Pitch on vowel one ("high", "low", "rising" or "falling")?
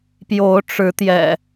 rising